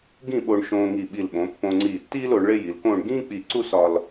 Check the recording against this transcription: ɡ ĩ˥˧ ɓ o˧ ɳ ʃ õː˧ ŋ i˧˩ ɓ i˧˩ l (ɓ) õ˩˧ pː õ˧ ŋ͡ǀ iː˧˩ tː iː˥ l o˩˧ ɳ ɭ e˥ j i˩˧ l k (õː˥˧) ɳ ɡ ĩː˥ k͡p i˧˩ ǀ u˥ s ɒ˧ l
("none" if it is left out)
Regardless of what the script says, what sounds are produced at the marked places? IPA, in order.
ɓ, õː˥˧

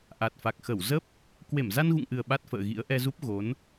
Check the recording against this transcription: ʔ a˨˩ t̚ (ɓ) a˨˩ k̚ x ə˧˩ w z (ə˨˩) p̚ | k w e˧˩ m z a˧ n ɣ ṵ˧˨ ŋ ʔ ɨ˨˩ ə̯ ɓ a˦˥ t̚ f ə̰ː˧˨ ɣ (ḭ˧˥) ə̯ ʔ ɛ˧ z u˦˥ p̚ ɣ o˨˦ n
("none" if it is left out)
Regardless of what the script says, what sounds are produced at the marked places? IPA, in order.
f, ə˦˥, ḭ˧˥

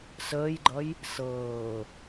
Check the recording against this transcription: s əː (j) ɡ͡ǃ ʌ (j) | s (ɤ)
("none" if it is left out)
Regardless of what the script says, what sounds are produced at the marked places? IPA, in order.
j, j, ɤː

